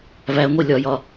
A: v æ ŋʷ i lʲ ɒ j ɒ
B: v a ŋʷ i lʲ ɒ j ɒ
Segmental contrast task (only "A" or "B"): A